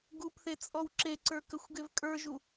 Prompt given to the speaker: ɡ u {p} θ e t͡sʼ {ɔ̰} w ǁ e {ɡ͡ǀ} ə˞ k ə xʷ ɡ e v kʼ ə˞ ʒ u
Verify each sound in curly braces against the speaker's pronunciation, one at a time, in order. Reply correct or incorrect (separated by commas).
correct, incorrect, incorrect